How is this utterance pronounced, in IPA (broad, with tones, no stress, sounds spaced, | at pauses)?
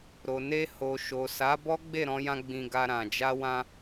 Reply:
ɾ o˨ n e˧ h o˨ ʃ o˨ s a˨˦ b ɔ˦ ɡ͡b e˦˨ ɾ ɔ̃˧ j ã˧ ɡ͡b ĩ˧ ɡ a˧ ɾ ã˨ d͡ʒ a˧ w ã˧